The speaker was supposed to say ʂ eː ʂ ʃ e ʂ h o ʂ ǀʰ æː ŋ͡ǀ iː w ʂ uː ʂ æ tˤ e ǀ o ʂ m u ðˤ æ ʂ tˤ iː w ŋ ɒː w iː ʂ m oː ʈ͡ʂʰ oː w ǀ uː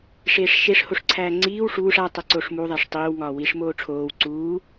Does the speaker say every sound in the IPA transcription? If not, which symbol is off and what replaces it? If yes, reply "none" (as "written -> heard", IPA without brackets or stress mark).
none